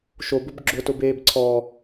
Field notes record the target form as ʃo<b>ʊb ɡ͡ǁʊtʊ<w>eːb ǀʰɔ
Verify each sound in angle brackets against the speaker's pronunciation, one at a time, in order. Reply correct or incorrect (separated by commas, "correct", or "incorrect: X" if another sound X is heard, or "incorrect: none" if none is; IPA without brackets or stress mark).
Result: correct, incorrect: b